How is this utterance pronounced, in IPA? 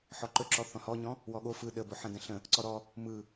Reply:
ħɔǃɵǁɔ θɔ̃hɔɲɔ̃ | wɔɠo fɯ ɗəbo ħə̃də̃ɬə̃ | ǀɔɾɔ | mɯ

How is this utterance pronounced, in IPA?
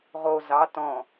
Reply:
ʁo zɑ tɔ̃

